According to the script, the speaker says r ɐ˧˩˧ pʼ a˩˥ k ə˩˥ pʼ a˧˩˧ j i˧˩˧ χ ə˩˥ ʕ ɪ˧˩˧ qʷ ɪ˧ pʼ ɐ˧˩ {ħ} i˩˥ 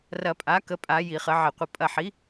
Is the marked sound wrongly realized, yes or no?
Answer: no